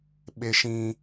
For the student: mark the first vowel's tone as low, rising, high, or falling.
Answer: high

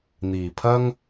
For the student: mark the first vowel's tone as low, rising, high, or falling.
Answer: low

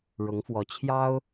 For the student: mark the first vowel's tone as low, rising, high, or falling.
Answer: rising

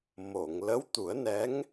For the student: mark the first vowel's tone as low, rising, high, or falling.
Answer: low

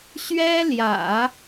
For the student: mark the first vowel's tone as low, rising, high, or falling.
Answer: high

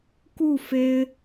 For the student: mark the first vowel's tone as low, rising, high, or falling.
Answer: falling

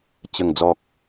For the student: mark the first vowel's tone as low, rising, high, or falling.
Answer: low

